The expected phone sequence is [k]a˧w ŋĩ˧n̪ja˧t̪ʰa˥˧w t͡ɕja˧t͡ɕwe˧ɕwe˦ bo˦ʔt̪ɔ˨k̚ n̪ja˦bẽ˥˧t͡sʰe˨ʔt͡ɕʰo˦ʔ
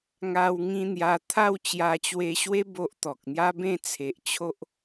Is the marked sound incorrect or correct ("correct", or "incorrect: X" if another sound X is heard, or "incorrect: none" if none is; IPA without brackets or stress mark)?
incorrect: ŋ